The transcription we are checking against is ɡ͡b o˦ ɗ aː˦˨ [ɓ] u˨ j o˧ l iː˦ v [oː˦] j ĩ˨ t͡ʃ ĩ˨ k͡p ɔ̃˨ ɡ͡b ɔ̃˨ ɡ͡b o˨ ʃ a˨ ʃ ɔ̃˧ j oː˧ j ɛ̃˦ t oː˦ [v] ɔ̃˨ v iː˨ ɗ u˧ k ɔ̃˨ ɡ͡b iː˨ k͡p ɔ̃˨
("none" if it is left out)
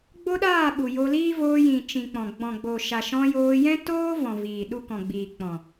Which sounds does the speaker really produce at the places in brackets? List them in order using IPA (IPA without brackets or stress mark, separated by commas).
ɓ, oː˧, v